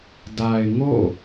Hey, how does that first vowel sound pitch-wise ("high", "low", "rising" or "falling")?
low